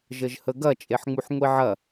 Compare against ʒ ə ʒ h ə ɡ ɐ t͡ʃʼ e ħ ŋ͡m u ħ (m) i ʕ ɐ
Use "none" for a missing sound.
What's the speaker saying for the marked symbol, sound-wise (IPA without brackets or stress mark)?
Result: ŋʷ